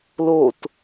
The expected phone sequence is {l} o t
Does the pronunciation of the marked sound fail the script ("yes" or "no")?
no